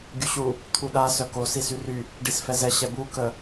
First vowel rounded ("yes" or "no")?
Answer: yes